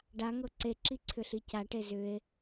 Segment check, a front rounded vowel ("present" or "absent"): present